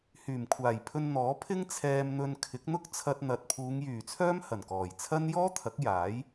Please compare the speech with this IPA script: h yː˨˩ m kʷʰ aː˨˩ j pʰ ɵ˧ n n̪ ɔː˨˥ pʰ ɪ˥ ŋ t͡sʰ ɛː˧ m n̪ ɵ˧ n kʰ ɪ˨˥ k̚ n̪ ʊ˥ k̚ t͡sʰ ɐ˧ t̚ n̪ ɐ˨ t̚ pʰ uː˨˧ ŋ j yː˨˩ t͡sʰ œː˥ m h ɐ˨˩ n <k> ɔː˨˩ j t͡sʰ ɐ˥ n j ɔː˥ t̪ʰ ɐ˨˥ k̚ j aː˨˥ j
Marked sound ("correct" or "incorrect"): correct